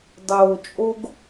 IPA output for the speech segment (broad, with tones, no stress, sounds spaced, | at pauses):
dˤ oː˨ t͡ʃʼ o˧ ɡ